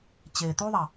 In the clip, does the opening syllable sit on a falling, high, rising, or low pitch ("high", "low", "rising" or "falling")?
low